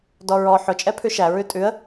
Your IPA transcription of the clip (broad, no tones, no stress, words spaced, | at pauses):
dɔɹɔ ħʊ t͡ʃʼɛpʰʉʃæ ɹʉtʼʉə̯